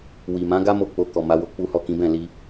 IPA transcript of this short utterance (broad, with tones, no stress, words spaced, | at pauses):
wi˨ mã˨˦ɡa˦ mo˦˨ k͡po˧kɔ˨ ma˨˦wo˧ k͡pu˦hɔ˦˨kĩ˨˦ bɛ̃˦˨ li˧